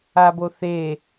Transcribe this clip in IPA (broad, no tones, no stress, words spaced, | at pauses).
aboθe